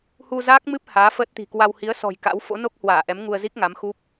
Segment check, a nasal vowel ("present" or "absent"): absent